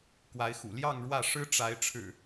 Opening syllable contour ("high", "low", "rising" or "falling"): rising